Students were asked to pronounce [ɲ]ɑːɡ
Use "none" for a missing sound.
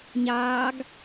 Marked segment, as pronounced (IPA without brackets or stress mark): ɲ